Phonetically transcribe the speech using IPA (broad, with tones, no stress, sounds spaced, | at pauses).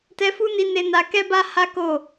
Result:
t ɛ˧ f u˦ n i˧ n e˧ n a˧ k ɛ˦ b a˦ h a˦ k o˦˨